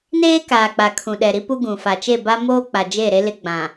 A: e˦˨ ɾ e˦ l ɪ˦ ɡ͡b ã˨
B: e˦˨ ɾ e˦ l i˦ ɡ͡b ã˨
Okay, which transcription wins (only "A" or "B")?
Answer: A